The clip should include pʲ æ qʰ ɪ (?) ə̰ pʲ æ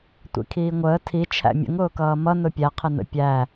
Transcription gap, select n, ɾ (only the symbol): n